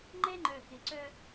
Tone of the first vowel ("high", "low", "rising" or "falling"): high